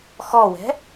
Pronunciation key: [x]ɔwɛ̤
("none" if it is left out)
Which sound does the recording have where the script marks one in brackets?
x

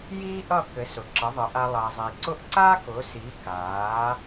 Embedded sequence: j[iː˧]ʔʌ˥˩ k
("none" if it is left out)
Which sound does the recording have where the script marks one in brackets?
iː˥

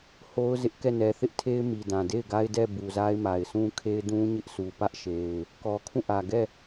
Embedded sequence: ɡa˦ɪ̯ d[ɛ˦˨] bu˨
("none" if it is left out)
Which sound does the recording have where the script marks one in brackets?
ɛ˦˨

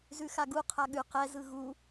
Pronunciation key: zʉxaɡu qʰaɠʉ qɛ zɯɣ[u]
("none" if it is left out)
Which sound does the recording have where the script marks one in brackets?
u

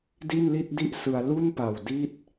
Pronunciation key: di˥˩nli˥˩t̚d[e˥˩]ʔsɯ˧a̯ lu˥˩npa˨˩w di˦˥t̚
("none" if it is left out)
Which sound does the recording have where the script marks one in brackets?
i˥˩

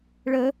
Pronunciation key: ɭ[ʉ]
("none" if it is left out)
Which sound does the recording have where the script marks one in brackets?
ə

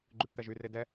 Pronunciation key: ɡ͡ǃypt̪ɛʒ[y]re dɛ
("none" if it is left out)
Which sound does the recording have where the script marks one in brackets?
y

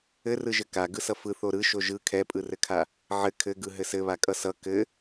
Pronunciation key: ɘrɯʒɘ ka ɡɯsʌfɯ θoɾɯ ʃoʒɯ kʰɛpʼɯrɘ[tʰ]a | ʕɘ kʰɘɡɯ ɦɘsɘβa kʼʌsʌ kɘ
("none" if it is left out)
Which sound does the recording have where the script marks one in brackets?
kʰ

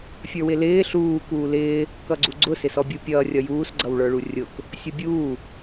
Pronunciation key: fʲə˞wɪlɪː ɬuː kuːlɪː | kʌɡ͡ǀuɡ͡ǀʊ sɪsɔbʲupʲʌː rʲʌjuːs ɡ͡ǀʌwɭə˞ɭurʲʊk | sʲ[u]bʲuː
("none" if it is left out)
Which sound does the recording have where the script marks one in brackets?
ʊ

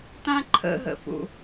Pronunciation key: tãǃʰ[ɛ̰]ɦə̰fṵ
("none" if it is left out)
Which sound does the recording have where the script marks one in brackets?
ə̰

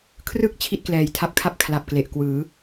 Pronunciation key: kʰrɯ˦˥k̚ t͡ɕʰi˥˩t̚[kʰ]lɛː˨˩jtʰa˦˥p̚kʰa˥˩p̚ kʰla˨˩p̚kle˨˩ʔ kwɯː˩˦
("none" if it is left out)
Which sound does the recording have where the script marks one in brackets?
k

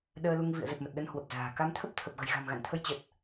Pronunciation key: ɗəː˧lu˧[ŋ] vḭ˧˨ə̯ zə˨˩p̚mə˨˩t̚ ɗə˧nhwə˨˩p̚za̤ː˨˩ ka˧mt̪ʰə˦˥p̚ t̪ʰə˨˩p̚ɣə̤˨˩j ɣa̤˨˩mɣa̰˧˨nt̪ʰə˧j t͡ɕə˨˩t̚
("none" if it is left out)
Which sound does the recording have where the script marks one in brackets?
ŋ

